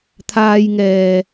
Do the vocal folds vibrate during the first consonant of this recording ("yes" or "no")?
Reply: no